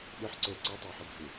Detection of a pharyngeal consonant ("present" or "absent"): present